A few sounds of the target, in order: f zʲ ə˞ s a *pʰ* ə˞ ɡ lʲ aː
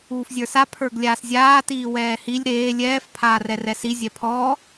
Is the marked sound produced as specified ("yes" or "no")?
yes